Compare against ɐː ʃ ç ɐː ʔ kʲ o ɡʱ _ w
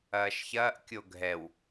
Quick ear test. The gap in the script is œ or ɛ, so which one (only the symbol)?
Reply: ɛ